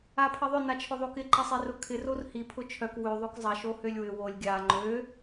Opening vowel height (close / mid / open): open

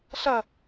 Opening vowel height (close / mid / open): open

